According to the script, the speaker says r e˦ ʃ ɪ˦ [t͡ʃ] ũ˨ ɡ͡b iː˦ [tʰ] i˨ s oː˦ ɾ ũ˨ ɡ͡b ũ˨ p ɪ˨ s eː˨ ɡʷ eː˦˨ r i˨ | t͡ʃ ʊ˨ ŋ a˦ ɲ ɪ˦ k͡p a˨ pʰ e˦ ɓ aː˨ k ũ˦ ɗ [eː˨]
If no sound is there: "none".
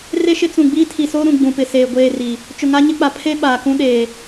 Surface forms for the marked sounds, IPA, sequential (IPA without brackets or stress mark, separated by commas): t͡s, tʰ, eː˨